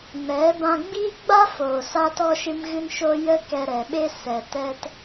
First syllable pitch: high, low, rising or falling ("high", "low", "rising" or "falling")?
rising